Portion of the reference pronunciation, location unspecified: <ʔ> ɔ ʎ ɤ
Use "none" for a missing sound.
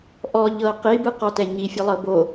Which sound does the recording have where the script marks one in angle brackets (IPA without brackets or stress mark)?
ʔ